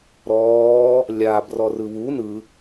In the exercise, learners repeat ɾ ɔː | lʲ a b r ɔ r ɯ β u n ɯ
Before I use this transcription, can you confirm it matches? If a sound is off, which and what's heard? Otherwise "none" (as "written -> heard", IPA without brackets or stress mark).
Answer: none